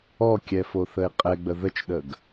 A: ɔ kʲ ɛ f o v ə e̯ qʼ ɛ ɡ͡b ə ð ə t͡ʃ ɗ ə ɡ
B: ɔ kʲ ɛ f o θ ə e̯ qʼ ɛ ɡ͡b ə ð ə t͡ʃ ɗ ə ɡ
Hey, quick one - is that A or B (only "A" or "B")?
B